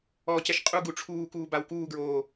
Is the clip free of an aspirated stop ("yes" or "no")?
no